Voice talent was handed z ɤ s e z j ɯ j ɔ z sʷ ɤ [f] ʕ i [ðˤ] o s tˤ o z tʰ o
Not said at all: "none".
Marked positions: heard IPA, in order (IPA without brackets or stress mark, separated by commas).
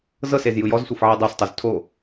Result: f, dˤ